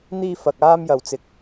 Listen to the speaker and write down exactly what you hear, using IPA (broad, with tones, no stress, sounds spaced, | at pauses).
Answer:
n̪ iː˧ f ɐ˨ k̚ aː˧ m j ɐ˨ w t͡s ɪ˨ k̚